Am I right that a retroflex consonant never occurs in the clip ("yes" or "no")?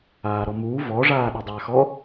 no